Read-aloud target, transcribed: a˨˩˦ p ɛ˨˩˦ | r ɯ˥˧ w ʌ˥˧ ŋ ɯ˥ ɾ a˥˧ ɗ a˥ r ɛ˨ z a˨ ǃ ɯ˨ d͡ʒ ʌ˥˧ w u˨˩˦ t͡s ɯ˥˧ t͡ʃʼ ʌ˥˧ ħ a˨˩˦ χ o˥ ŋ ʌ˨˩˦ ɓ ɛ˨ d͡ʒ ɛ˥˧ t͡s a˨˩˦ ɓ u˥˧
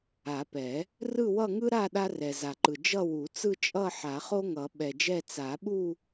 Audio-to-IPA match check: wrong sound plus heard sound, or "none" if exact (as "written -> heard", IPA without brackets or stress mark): none